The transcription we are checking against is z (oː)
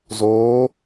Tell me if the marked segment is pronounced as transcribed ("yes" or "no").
yes